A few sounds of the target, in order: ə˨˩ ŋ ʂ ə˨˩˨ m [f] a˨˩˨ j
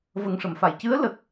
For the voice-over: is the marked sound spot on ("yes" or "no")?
yes